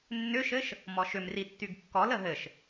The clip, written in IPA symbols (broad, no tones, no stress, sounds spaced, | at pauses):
nː ʏ ʃ ɘ ʃ | m ɔ ʃ ʏ m r i tː y ɡ kː ɔ l ə ɦ ɘ ʃ